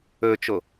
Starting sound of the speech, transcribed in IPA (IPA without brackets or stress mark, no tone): ɵ